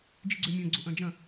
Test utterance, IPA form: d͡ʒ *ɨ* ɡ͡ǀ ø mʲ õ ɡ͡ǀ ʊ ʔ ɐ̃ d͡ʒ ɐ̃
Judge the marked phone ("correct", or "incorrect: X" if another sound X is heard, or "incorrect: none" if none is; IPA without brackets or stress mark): incorrect: i